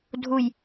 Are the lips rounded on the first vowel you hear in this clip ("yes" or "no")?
yes